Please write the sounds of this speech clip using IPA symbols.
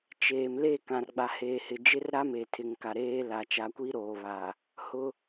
t͡ʃeː˨mle˦˨ kã˨rɡ͡ba˨heː˨ hɪ˨d͡ʒɪ˦r ɾa˦me˨tʰɪ˨ŋka˨ ɾeː˦la˨ t͡ʃa˨˦kʷiː˦ ɾoː˨βa˨ | hʊ˦

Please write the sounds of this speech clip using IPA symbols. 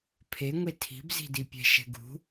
pʰeŋʷe tʰi̤bzi̤dipʲɛ̤ ʃɛ̤ɡṳ

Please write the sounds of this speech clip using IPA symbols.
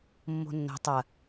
mːo̤nːo̤ tˤɐ

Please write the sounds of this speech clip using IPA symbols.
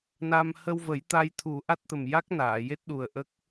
na˧m hə˧wvə˨˩˦jt̪a˧jt̪ʰu˨˩˦ ʔa˦˥t̚t̪ə˨˩m ja˦˥k̚ naː˨˩˨je˦˥t̚ɗu˨˩ə̯ ʔə˦˥k̚

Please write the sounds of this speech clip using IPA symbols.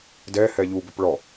dɛhɛ ʎubʏp ɭɔ

